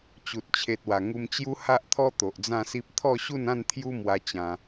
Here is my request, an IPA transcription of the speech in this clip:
t͡ɕ u˨ t̚ t͡ɕʰ e˨ t̚ w a˨˩ ŋ u˧ m t͡ɕ j u˦ h a˦ ʔ t̪ʰ ɔ˦ t̪ o˨ ʔ d͡z ã˥˧ s i˦ p̚ t̪ʰ ɔ˥˧ ɕ u˥˧ n ã˥˧ n t̪ʰ j u˦ m w a˧ t͡ɕ ã˧

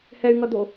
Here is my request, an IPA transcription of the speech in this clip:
h ɛ y̯ ŋ ʌ d̪ o

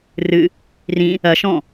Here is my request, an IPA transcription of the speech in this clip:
r ɨ | r ĩ | ɐ ʃ ɔ̃

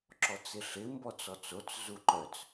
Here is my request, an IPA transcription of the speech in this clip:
ǁ ɔ t͡s ɪ ɬ ɪ m b ɔ t͡s ɔ t͡s o t͡s z u ǃ œ t͡s

